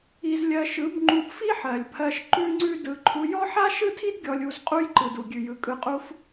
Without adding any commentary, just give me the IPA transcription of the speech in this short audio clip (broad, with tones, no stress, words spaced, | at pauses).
i˧zlʲɜ˧ ʃɯ˨˦bŋ͡ǃu˧b fi˦ħɜ˨lʲpʰɜ˧ʃ ǃʉ˦ŋ͡ǀʉ˦dɯ˧ ǃʰu˧jɔ˦ ħa˦ʃɯ˦tʰi˦d ɡʲɔ˧lʲu˧z qʼu˦jǃɯ˨du˨ ɡʲʉ˨jɯ˨kʼɯ˧qʼu˦f